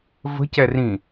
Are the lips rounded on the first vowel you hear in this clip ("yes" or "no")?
no